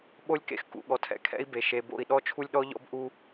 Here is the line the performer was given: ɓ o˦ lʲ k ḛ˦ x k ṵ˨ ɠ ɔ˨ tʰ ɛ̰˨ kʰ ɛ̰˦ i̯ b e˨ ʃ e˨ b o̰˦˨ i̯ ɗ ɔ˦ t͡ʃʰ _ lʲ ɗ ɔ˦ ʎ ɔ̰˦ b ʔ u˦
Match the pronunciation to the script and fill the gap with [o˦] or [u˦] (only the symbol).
u˦